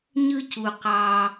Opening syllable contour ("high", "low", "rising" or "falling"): high